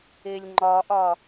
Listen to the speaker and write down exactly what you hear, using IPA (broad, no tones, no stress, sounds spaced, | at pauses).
e lʲ ŋ͡ǃ ɒ ʔ ɒ